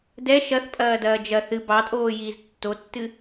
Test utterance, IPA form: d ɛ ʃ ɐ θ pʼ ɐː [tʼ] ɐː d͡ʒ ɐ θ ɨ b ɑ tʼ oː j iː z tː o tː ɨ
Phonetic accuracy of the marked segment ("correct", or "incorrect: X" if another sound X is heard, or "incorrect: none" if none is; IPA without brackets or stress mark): incorrect: d